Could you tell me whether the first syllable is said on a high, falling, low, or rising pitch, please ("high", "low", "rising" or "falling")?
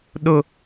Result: high